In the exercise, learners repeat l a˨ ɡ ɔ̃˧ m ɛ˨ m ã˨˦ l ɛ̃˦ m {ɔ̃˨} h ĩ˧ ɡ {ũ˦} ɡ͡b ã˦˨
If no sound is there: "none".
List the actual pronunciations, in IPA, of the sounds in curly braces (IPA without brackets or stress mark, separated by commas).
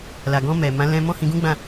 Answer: ɔ̃˦, ũ˦